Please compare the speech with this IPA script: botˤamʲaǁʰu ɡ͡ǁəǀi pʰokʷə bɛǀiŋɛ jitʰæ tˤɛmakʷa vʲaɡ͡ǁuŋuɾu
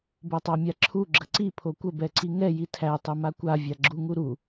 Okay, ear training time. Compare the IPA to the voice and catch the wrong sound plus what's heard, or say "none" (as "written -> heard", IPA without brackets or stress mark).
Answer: none